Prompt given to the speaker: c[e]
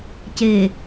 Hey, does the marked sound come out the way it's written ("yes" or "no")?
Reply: yes